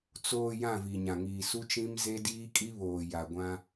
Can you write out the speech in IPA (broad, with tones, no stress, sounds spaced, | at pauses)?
t͡s oː˨ j ã˦˨ v i˨ ɲ ã˨ ŋ iː˨ s u˦ t͡ʃ ĩ˦ m z e˦ d iː˦ kʼ i˦ β oː˨ j a˨ ɡʷ ã˦